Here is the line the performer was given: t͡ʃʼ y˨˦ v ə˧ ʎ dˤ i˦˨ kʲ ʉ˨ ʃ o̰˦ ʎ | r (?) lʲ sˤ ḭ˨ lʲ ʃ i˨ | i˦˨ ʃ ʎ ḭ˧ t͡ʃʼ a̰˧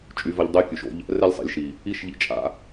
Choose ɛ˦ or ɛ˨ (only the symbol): ɛ˦